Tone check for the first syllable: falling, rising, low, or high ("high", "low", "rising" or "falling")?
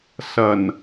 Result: low